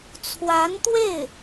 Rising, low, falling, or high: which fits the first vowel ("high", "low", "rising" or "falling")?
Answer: rising